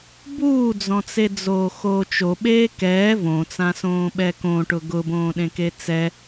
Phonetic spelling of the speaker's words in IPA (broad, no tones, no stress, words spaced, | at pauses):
buːd͡zɔ̃t͡sed͡zoː xoːt͡ʃoɓeː kɛː võt͡sãsõːɓɛ kõʈʊ ɡʊbõːɗẽke t͡sɛ